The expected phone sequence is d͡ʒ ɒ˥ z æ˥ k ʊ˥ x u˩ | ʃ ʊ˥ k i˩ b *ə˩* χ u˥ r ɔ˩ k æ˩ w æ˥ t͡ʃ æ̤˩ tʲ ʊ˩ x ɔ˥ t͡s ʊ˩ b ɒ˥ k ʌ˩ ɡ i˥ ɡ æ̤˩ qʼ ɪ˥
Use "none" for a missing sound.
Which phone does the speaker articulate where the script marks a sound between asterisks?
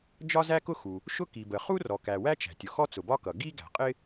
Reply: ə˩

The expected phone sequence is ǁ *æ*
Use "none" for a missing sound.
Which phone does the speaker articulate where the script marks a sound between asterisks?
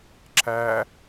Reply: æ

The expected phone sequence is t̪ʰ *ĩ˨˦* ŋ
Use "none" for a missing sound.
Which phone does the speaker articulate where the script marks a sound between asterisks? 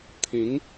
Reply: ĩ˨˦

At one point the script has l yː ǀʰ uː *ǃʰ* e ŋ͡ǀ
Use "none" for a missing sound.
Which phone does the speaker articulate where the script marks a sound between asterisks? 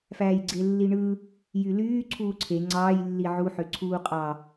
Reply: ǀʰ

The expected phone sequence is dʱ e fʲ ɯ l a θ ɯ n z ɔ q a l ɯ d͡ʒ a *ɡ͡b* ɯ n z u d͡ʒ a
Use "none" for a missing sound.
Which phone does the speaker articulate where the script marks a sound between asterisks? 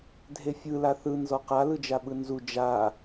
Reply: ɓ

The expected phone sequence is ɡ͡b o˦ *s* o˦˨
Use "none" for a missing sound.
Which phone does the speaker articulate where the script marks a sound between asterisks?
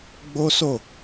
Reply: s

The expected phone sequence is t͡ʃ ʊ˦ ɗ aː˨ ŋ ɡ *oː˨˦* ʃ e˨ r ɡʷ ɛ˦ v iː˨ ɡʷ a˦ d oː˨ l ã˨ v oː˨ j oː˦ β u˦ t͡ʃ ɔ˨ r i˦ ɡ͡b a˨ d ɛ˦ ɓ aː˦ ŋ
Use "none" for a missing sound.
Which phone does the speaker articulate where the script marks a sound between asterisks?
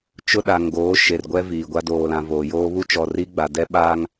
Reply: oː˨˦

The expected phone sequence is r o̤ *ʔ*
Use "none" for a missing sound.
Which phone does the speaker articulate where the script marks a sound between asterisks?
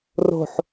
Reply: ħ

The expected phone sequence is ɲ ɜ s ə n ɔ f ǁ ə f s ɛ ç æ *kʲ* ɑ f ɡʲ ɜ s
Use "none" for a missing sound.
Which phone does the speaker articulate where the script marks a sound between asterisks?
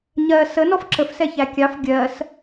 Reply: kʲ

